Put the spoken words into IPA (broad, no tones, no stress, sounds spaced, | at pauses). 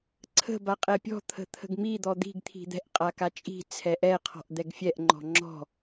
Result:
ǀʰ ə̤ b a qʼ ɛ pʲ ɔ̤ t̪ʰ ə̤ t̪ʰ ə̤ ɡ m i d̪ ɔ d̪ i̤ ɡ t̪ʰ i̤ d̪ ɛ̤ ʔ qʼ a k a t͡ʃʼ i̤ t͡sʰ ɛ ʔ ɛ qʰ ɔ̤ ʔ d̪ ɛ ɡ fʲ ɛ ʔ ŋ͡ǃ ɔ̤ ŋ͡ǁ ɔ̤